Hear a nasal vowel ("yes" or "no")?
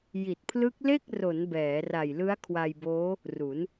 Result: no